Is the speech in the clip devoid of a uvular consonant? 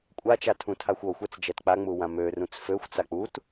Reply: yes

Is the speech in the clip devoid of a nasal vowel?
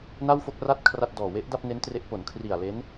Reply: yes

